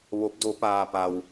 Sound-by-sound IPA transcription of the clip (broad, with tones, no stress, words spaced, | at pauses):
ʋo˧˥p̚do˧˥paː˧ pa˧w